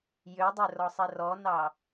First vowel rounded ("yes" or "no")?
yes